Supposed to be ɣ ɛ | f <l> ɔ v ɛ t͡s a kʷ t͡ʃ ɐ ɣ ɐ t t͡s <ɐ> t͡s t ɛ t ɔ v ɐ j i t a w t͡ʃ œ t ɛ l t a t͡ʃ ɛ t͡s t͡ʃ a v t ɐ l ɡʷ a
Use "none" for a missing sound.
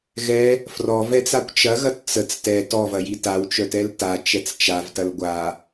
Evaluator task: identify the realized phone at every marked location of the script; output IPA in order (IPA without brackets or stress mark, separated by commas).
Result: r, ə